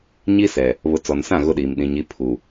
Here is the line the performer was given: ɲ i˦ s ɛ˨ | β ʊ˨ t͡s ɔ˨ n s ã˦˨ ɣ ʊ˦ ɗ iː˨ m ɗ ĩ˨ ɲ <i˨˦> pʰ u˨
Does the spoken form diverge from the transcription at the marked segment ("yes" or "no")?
no